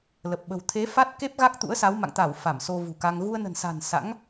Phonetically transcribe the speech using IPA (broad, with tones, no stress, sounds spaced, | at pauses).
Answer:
l ə˨˩ p̚ ɓ ə̤˨˩ w t̪ʰ e˨˦ f a˦˥ t̚ k e˦˥ p̚ ɣ a˦˥ k̚ t̪ ṵ˧˥ ə̯ s a˨˦ w m a̰˧˨ ŋ t̪ a˧˩ w f a˧˩ m s o˧ v ṳ˨˩ k aː˧ ŋ ɣ u˧ ə̯ n ə̤˨˩ n s a̤˨˩ n s a̰˧˥ ŋ